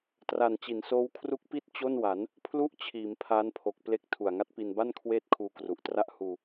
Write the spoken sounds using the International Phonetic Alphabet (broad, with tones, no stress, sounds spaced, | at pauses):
t r a˨˩ n t͡ɕ i˩˦ n s oː˦˥ w kʰ r u˦˥ k̚ p i˥˩ t̚ t͡ɕ o˥˩ n w a˩˦ n | pʰ l u˥˩ ʔ t͡ɕʰ iː˩˦ m pʰ aː˦˥ n pʰ o˨˩ k̚ p l e˦˥ k̚ tʰ u˨˩ a̯ ŋ a˦˥ t̚ p i˧ n b a˥˩ n kʰ w eː˥˩ t̚ kʰ uː˧ k r u˨˩ ʔ t r a˥˩ ʔ h uː˧